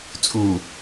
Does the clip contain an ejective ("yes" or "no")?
yes